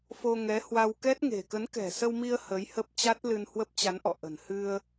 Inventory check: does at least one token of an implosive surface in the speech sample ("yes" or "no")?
no